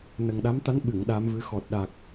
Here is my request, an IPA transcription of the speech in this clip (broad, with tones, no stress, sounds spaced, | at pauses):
n ə˨˩ ŋ ɗ a˧˥ m t̪ a˧˥ n ɓ ɨ˨˩˨ ŋ ɗ a˧˥ m v ɨ˧˥ x ɔ˨˩ t̚ ɗ a˨˩ k̚